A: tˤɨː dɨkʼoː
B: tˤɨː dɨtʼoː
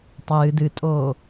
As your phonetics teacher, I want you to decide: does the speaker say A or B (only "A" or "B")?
B